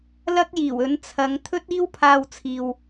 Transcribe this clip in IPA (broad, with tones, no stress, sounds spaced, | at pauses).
l ɐ˥ k̚ j iː˨˩ w ɵ˨˧ n t͡sʰ ɐ˨˧ ŋ t̪ʰ ɵ˥ t̚ iː˥ w pʰ aː˧ w t͡sʰ iː˨ w